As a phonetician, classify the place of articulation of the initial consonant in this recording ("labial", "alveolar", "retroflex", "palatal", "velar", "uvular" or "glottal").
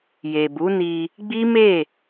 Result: palatal